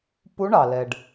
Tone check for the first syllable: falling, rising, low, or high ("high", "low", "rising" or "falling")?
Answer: rising